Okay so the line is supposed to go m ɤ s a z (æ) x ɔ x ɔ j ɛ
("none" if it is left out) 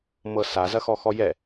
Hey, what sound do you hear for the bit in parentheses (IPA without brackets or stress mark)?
ɐ